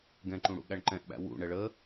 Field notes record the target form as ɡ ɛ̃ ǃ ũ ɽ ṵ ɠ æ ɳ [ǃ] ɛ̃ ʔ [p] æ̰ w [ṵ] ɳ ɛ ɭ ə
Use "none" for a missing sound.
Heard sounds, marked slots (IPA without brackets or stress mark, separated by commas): ǃ, ɓ, ṵ